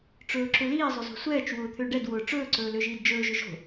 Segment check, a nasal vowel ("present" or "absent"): absent